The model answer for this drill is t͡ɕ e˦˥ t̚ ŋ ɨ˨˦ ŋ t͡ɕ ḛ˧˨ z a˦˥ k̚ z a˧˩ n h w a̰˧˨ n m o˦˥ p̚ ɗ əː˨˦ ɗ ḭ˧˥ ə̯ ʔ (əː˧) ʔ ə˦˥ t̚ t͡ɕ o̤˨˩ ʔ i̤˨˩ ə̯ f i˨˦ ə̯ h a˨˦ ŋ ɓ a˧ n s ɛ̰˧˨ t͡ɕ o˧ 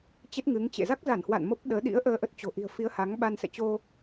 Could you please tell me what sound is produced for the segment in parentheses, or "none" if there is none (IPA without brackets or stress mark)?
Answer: əː˧